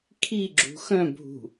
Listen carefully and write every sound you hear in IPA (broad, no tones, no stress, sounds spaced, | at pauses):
kʰ i ɡ͡ǁ ṳ x œ̃ bʱ ṳ